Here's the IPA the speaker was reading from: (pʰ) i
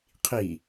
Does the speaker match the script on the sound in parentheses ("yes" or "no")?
no